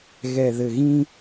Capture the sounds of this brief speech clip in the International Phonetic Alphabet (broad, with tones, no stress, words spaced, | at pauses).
ɣɛ˨ðɘ˨ɣĩ˦